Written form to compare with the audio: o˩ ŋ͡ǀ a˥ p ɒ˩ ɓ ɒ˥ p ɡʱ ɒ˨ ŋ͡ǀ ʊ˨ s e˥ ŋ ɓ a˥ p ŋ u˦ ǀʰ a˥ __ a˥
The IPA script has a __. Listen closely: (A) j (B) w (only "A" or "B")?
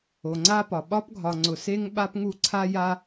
A